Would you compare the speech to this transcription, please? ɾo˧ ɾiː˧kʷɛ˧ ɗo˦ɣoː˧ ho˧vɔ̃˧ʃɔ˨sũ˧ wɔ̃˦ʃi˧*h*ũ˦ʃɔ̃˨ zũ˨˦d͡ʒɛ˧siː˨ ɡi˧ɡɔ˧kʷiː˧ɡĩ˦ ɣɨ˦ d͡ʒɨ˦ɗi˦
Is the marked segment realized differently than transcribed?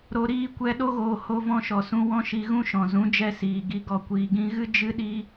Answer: yes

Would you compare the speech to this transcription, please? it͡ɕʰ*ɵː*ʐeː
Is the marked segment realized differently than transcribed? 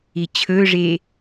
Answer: no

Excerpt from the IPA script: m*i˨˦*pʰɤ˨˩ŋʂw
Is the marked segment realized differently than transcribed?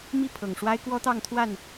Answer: yes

